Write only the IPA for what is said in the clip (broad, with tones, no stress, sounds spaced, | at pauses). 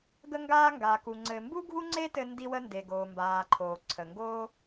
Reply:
ɡ ə˧ ŋ ɡ aː˧ ŋ ɡ a˩ k u˩ ŋ͡ǀ ɘ˩ m b u˥ ɡʱ u˥ ŋ͡ǀ e˥ t ɘ˧ n d i˧ w ə˧ n d e˩ ɡ oː˩ m b aː˩ ǃʰ oː˩ ǀʰ ə˩ ŋ ɡ oː˥